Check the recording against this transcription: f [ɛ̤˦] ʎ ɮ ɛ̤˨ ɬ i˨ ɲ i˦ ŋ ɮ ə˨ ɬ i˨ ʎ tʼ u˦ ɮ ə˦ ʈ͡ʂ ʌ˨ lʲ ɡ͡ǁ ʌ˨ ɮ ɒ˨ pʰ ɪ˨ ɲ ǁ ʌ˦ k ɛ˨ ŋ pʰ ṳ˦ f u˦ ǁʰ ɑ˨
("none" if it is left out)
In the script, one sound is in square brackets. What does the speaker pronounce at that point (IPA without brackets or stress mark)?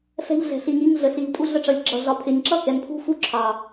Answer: ɛ̤˦